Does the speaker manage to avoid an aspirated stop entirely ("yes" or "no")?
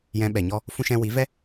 yes